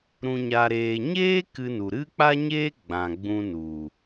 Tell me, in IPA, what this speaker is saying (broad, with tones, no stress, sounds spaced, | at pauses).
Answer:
ɾ ũ˨ ɲ a˨ ɾ eː˨ ɲ eː˦ k ɨ˧ n u˨ ɾ ɨ˦ k͡p a˦ ɲ eː˦ ɡ͡b ã˨ ɡ͡b ũ˧ n u˨